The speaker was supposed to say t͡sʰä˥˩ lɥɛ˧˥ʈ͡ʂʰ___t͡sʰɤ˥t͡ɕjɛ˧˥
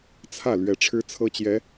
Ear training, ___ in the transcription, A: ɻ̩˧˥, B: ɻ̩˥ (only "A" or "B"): B